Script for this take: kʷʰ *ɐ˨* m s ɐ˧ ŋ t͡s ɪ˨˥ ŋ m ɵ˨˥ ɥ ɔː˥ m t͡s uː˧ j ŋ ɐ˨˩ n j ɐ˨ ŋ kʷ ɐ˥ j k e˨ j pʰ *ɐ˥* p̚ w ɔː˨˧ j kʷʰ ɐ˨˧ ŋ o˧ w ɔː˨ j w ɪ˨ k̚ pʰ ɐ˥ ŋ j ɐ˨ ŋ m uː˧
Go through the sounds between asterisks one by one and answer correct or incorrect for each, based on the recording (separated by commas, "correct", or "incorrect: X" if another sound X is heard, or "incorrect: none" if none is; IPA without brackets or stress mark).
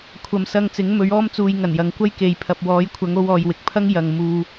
correct, incorrect: ɐ˨